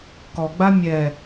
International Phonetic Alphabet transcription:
kɔɡ͡ba mʲɛ

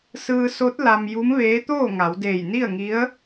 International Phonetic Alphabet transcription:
sɯː˧so˧˥t̚ la˧mju˧˥mʋeː˧˥ t̪oː˥˨ŋa˩˧w deː˧˩jni˥˨ə̯ŋi˧˥ə̯

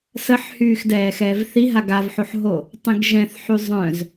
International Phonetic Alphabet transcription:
səħhyːx dɛːxɛːvθiɦa ɡavħoħɦo | tˤĩɡʒɛ̃θħy zˤœ̃z

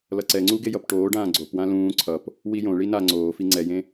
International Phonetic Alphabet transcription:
lʌǀɛŋ͡ǀu ɡejʌpʈoːɖãː ɡ͡ǀopwã lũː ǀʰʌp | wijõɭi na ŋ͡ǀoːfi ŋ͡ǀɛjẽ

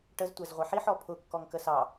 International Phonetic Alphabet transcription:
ʈəz tʷæzʁʷɛħiħ ɔpʰʊ kːɔŋkəsɑ

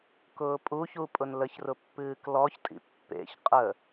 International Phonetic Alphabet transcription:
kʊːpʼuç upʼʊnləç rʊpːɨːklɔçtʼḭ pːḛç qʼə

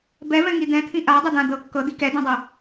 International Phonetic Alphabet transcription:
bɛvɛ̃ŋi d̪ɛ̃t̪ʰĩ ʔadˤɘd̪ã d̪ɤ kːɤd̪i kɛd̪ẽdˤɛ

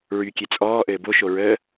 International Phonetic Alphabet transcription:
ɹykʲe t͡sʼɔː ʔɘːboʃo ɹəː

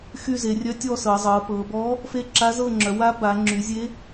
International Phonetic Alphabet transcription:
xy˦˨ze˩˧rʲœ˧˥tʲɔ˦˨ sɤ˩˧zˤɤ˩˧pɤ˩˧ bɔ˧˥ | fe˦˨ǁa˧˥ zɤ˦˨ŋ͡ǁœ˩˧wa˧˥ ba˩˧ ŋ͡ǁy˩˧zʲe˧˥

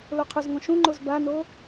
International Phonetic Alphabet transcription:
loqʰɵzŋõ ʃũŋ͡ǃoz bano

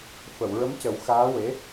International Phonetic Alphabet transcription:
fə˨˩˨wɹə˧˥mcə˨˩˦wxaː˧˥ we˧˥

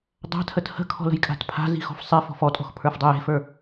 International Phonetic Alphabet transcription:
dˤa̤tʰət hə̤kʰɔ̤lə̤jkʼa̤t pʰa̤zi̤xɔ̤f sˤefɔ̤f ɔtʼɔ̤xpʰə˞fdˤə je̤fə˞

